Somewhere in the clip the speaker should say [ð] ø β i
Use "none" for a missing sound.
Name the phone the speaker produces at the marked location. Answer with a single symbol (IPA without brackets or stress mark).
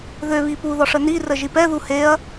ð